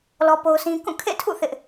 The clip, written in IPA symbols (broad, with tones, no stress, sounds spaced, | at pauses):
l ɔ˦ p o˦ ʊ̯ sʰ ĩ˦ k ũ˦˨ kʰ ḛ˦˨ tʰ ṵ˦˨ θ ɪ˦ ʔ